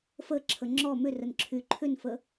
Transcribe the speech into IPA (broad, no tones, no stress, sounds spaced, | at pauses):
f ə ǁʰ ə ŋ͡ǁ ɔ m ʏ r ə n ǁʰ y ǃʰ ʏ n f ə